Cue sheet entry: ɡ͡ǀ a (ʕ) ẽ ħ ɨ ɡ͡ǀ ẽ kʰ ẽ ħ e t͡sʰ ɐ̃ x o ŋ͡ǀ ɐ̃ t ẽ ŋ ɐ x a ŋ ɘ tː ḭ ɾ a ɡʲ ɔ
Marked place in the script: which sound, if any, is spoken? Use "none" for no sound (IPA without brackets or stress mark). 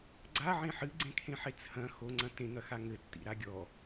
ʕ